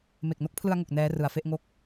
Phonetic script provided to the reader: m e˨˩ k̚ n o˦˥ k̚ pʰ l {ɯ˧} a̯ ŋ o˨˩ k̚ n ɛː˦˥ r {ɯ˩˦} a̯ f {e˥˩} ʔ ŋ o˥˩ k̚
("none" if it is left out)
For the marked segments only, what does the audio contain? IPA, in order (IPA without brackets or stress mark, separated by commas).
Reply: ɯ˧, ɯ˩˦, e˥˩